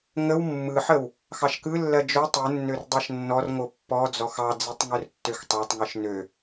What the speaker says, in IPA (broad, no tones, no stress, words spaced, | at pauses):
ŋəw mːɯħəw | xɑʃkɯlːɜ d͡ʒo tˤɯnːør dˤɜʃnːɔrŋo pːɔ d͡zɔxɑd͡zitˤ ŋørtːøxtˤɑtˤŋɯʃ nø